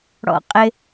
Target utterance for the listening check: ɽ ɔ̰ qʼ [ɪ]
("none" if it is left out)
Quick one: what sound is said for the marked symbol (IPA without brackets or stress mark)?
ɪ